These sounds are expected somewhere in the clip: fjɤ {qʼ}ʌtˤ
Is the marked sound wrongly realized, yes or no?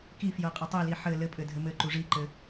no